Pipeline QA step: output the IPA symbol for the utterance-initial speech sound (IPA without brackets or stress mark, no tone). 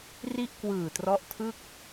r